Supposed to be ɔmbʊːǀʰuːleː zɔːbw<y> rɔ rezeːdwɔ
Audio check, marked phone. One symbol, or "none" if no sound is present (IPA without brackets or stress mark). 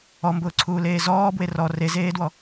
e